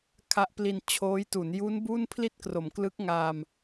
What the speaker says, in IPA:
kʰ a˦˥ ʔ p l i˧ n t͡ɕʰ oː˦˥ j t u˩˦ n j u˦˥ n b u˥˩ n pʰ l i˥˩ t̚ k r o˩˦ m k l ɯ˦˥ k̚ ŋ aː˧ m

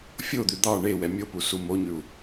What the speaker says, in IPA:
fʲ o d̪ ʉ d̪ ɑ ɳ e w ɛ mʲ o p u s u m o ɲ ʉ u̯

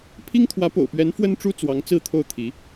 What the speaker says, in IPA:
pʰ i˥ ŋ t̪ʰ w ä˧˥ p o̰˨˩ ʊ̯ p ɥ ɛ˧˥ n f w ə˥ n ʈ͡ʂ u˥ t͡s w ɑ˧˥ ŋ t͡s ɹ̩˥ t̪ʰ o˥˩ ʊ̯ t̪ʰ i˧˥

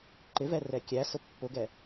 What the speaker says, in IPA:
ǃ ɪ v ɛ r ɛ kʲ æ s ʊ pː ʊ ɡ ɛ

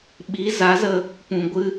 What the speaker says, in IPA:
ɓ i˨˦ z a˨˦ z ə˧ | p ũ˨ ɡʷ ɨ˧

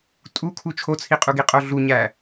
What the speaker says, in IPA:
tʼ u kʰ u t͡ʃʰ o t͡sʰ i qʼ u ɡ i qʼ o ɮ u ɲ æ

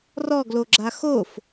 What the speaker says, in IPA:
r ɔ ɡ l o ɡ͡ǁ a x o f

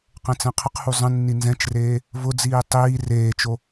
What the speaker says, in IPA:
q ɛ̃ t͡s ɛ̃ qʰ ə q h u zˤ ə̃ nː i n z ɛ̃ t͡ʃ r eː | v ʊ d͡z iː tˤ iː r eː t͡ʃ o

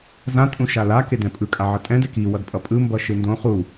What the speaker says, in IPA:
z ã tʼ ũ ʃ a l a k e d ɛ̃ pʼ ɯ kʼ a ʕ ʌ tʼ ɛ̃ d ɛ k i w ʌ d pʼ ʌ pʼ ɯ m b ʌ ʃ ɯ n d õ χ u

